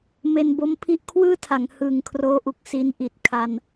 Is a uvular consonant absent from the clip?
yes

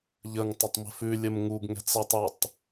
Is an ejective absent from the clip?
yes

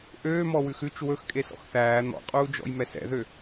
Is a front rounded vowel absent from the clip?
no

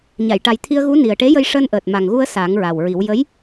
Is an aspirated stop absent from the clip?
no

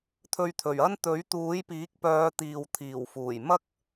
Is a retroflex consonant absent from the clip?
yes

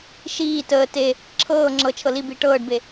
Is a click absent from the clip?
no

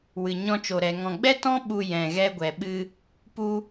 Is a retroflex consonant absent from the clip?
yes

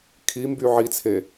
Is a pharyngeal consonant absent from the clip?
no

